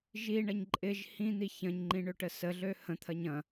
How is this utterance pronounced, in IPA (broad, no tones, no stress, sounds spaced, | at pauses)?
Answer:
ʒ i ɳ ɐ ɲ ǃʼ ɪ ʒ h ĩ n̪ i ç ɐ̃ ɲ ŋ͡ǃ ĩ ɳ ø ʈ ə s ə ɮ ø h ə̃ t̪ʰ ɐ ɲ ɐ̃